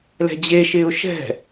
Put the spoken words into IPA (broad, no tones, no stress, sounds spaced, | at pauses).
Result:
l ɛ̤ d͡ʑ e ʃ ɪː ʊ̯ ʃ ɛ̤